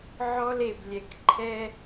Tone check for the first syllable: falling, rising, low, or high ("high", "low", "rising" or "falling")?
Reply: high